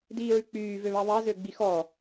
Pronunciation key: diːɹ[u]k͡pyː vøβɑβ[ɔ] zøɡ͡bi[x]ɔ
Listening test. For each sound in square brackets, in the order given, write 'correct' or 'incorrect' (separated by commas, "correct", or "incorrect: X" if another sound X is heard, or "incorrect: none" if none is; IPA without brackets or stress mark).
incorrect: ʉ, incorrect: ɑ, correct